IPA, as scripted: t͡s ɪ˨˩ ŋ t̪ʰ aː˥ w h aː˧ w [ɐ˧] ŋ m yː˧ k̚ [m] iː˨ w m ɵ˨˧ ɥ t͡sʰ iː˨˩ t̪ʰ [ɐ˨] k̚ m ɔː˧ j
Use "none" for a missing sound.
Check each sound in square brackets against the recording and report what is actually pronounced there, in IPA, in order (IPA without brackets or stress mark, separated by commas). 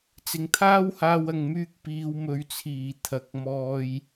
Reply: ɐ˨, p, ɐ˨˥